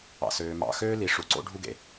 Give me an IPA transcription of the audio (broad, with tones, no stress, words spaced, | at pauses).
ɑ̰˧søː˧ mɑ̰˧xøː˦li˨˦ ʂu˨ǀo̰˦ɖʱu˦ɡḛ˧